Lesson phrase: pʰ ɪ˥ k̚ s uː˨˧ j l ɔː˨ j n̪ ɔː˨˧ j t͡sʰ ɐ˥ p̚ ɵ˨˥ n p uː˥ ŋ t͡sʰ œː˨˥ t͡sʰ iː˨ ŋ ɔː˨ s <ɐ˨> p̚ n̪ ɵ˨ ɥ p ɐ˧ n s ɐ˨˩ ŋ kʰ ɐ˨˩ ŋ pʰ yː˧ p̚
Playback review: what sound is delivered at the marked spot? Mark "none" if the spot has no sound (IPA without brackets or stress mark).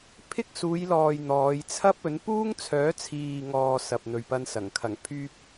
ɐ˨